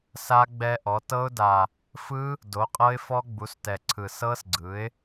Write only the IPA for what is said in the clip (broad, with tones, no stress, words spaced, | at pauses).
sa˦˥ɡ͡bɛ˦˥ ʔɔ˩˥ tɤ˦˥ʊ̯da˨˩ | fɯ˦˥ | do˩˥qʼɤ˦˥ɪ̯ fɔ˦˥ ɡ͡bu˩˥stɛ˨˩ǀʰɯ˨˩ sɤ˦˥s ɡ͡ǀɯ˩˥ɪ̯